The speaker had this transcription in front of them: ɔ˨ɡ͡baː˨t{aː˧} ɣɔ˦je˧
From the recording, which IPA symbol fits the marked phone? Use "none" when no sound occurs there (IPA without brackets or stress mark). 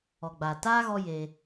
aː˦